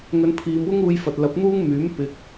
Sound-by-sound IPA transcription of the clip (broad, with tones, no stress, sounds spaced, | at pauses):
ŋ ɵ˨˧ n pʰ iː˨˧ m w ʊ˥ ŋ uː˧ j f ɐ˨ t̚ l ɐ˨˥ p̚ n̪ uː˥ ŋ m yː˨˥ m p ɪ˧ k̚